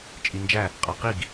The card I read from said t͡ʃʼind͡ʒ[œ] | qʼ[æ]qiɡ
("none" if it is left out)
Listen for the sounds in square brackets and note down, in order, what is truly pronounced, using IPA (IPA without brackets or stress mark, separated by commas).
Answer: æ, a